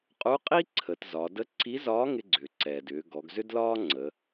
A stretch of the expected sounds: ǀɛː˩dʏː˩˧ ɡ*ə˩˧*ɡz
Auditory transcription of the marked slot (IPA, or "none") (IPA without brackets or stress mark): ɔ˩˧